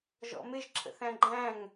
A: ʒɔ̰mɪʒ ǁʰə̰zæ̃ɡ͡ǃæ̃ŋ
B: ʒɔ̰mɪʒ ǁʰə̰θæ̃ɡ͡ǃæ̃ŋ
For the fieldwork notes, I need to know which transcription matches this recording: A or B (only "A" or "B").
B